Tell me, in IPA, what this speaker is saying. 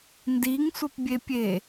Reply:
ndiŋsʷəpbʲepʲe

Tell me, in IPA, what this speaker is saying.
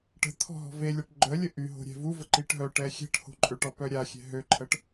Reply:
ʈə̤ t̪ʰɔ̤ɦɔ̤velʲaʈ ɡ͡ǃœlʲə ʔyɦo̤ ɾʲɛ̤vuvə ǃiʈɦœʈɛ xʲɛ̤ʈho̤ ǃʼøʈɔ pœɾʲaxʲɛ̤ ɦøǃʰəʈ

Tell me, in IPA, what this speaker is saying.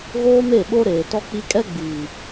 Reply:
ɣoː˦me˦˨ɓo˦ ɾeː˨tɔ˦k͡pi˦ kʼɛ˦ɡ͡biː˨

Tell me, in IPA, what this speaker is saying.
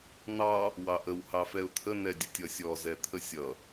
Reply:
n̪ɑ | wɑʔəw hɑfɛʊ̯t̪ʰə nɛdʲətʲʌsʲɔ zɛt̪ʰəsʲʌ

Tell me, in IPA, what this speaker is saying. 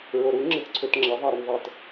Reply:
ɹoɾu ŋ͡ǁɪtǀʰøtŋ͡ǁɐ ðˤɐ ɾœnðˤɛt

